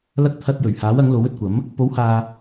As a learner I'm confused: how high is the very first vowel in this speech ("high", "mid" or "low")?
low